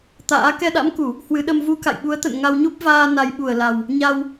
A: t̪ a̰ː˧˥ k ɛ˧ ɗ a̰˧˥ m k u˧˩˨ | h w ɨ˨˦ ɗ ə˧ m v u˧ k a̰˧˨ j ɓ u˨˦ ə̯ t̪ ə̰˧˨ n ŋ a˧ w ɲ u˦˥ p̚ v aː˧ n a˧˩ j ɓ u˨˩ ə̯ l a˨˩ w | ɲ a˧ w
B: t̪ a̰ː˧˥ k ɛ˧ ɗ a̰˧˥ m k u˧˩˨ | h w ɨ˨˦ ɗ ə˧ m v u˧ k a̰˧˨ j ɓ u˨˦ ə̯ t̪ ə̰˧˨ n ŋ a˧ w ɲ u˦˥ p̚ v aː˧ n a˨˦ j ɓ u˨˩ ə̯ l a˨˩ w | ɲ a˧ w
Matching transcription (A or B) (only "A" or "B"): B